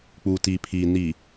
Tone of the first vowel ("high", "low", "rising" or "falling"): low